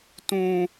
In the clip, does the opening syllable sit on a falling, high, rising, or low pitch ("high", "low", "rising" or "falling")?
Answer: high